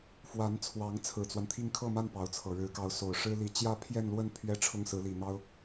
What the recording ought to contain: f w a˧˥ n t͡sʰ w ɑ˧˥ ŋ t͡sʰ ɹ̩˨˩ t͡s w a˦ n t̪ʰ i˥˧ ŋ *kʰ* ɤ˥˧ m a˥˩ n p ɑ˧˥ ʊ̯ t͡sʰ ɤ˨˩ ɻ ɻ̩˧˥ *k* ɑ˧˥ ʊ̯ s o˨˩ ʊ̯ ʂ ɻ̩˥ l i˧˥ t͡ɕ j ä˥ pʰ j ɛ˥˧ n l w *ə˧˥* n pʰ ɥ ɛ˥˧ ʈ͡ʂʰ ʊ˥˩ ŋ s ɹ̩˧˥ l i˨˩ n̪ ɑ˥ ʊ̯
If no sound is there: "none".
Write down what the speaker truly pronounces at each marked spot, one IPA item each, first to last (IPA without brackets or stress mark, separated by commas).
kʰ, k, ə˥˧